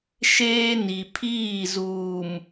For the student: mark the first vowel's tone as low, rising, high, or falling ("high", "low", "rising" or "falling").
high